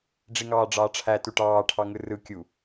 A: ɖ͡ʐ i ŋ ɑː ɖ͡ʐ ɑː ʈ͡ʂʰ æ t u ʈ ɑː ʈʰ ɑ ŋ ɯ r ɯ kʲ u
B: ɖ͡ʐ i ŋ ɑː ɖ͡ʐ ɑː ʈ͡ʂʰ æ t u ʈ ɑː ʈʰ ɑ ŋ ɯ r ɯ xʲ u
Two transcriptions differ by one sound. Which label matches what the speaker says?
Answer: A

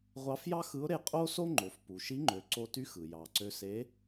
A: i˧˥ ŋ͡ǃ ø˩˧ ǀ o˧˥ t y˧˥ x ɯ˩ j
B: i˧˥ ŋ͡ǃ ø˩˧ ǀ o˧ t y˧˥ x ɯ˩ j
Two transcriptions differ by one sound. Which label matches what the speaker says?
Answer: B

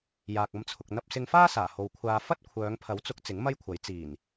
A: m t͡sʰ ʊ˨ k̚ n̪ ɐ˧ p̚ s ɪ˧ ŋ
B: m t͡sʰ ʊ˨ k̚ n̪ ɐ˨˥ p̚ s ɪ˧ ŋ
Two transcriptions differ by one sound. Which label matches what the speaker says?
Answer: A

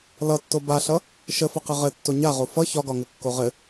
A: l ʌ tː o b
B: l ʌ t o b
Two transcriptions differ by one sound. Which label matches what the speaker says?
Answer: A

